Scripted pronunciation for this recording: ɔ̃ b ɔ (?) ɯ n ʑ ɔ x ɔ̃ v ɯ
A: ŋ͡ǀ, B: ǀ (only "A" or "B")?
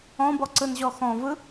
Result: B